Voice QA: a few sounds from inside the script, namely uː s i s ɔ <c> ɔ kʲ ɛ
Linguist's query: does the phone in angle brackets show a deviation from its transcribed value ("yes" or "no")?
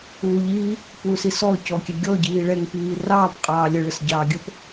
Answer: no